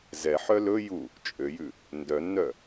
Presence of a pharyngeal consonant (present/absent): present